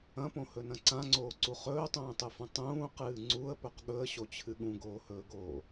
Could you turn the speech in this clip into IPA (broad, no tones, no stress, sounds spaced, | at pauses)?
ɐ̃ p õ h ɵ n ɐ̃ ǀ ã ŋ͡ǀ oː ǀ u χ ɵː tˤ ũː tˤ ɨ f ũ tˤ ũː q ɨː ŋ͡ǀ u ə̯ p ɵ q ɠ ɵ ə̯ ɕ o t͡ɕʰ ɨ ɠ ũ ɡ oː h ɵː ɡ oː